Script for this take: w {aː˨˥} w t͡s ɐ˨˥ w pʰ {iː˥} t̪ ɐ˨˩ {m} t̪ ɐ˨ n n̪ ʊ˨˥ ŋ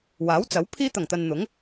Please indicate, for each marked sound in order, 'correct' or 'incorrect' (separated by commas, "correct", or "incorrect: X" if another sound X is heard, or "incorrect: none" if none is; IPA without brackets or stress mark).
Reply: correct, incorrect: iː˧, incorrect: ŋ